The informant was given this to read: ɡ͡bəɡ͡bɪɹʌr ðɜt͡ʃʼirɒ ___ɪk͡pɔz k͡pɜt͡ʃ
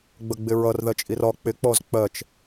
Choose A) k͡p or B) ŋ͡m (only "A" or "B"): A